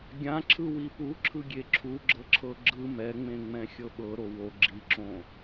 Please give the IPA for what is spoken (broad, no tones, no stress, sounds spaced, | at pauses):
ɡʲ ã ǁʰ ɯ w i p u ǁʰ ɯ ɡʲ e ǁʰ u ɡ͡ǁ ɤ ǁʰ ɤ ɡ͡ǁ ɯ m ɛ ŋ͡m ẽ ŋ͡m ɛ̃ xʲ ɤ ɓ ɤ ɾ o w o ɡ͡ǁ i ǁ õ